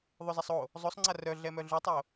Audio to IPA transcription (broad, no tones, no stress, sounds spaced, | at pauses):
ðˤ ø z a sˤ o | zˤ o sˤ ŋ͡ǀ a r œ ɮ ɛ m œ ɮ y tˤ o